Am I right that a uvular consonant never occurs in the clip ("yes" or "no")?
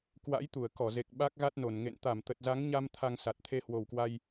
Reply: yes